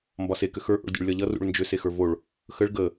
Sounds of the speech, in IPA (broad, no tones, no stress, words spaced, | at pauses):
mbɒse kʏxə˞ ʔo̰ɭdʲṵɭlʲɒʎʌ rṵɭnd͡ʒʏ sexə˞voɭ | xəɭ ɡə